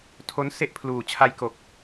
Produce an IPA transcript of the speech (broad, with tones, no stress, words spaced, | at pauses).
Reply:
tʰo˦˥n se˥˩ʔpʰluː˨˩ t͡ɕʰa˧jko˨˩k̚